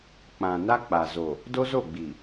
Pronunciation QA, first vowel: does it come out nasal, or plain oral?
nasal